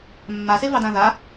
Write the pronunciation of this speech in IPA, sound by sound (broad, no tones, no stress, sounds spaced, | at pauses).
mː a s e v ɑ d ã ð a